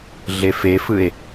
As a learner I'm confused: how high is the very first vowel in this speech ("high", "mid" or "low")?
mid